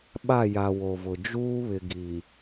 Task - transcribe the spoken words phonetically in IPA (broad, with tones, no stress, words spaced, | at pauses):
ɓa˦˨ja˨ wo˨vʊ˨ d͡ʒuː˦βɪ˨ ɡi˨